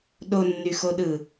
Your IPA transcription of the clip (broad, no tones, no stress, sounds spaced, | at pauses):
ɗ o nː y x o ɗ ɯ